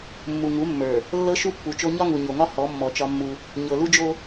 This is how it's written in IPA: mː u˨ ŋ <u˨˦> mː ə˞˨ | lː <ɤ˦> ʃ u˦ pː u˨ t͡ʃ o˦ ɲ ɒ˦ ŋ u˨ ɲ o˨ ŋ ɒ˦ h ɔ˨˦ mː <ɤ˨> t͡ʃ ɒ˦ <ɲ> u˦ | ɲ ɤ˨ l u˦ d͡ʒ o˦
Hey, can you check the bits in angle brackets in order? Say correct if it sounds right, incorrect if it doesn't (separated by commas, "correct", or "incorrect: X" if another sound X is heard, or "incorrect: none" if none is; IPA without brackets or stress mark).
correct, correct, incorrect: ɔ˨, incorrect: mː